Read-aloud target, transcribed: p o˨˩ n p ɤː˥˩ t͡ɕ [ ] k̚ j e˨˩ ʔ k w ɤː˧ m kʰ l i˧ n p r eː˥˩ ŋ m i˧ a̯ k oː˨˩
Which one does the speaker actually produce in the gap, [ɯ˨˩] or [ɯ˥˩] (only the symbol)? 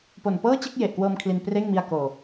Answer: ɯ˥˩